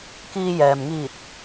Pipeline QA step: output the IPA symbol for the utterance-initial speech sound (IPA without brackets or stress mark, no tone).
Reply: k